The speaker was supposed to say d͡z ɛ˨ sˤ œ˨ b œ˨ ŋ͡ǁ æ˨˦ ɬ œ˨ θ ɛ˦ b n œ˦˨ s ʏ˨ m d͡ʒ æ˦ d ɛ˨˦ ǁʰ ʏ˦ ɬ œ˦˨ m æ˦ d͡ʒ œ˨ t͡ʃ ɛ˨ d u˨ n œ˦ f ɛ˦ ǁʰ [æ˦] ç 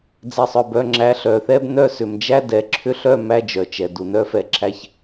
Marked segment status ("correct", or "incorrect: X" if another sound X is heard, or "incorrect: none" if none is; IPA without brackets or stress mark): correct